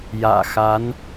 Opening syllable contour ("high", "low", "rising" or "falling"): low